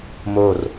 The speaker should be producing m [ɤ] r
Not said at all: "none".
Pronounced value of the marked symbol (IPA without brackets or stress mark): o